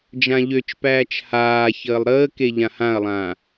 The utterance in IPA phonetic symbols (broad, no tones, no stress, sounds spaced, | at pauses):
d͡ʒ ã ʎ ø t͡ʃ p æː t͡ʃ h aː ç əː lˠ ɾ əː k e ʎ ã h ã ɐ̯ lˠ ãː